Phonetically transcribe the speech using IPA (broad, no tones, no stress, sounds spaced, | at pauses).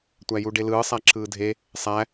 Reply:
tʷ æ j u ɖ e l ɯː sˤ æ ǁʰ ɯː dʱ e | sˤ æ